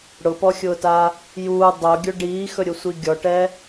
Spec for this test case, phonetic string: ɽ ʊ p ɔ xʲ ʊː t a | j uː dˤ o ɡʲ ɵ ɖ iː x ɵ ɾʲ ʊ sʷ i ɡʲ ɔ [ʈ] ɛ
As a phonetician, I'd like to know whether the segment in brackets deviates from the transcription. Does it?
no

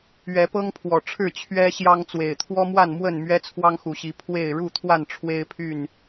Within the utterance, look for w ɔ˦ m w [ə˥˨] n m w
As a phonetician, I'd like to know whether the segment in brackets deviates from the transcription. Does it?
yes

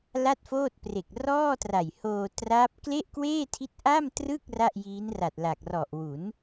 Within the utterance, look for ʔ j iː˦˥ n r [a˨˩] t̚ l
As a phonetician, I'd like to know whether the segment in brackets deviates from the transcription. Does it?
no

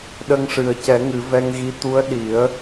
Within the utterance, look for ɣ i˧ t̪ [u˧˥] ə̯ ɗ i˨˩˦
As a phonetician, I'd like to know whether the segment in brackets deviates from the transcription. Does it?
no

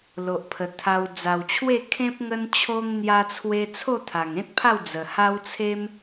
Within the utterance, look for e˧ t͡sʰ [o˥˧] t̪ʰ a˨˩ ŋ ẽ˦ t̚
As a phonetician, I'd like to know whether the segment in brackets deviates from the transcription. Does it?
no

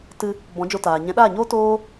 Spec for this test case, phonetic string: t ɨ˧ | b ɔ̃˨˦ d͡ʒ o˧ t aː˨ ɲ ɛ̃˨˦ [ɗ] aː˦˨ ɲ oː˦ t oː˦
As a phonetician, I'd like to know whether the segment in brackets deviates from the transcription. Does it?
no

